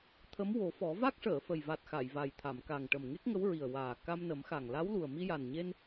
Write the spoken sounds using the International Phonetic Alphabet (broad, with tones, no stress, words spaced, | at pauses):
t̪ʰə˧˥mwo˨˩˦fɔ˨˩˦ va˦˥k̚ʂəː˨˩˨fə˨˩jva˨˩t̚ xa˨˩˨jva˨˩jt̪ʰa˨˩˨m ka˨˩ŋʈə˨˩m ŋe˦˥k̚ŋə˧˥wɹi˨˩ə̯ waː˨˩ ka˧mnə˨˩˦mxa˨˩ŋ la˧˥wlu˨˩ə̯ mi˧ja˨˩nɲe˧n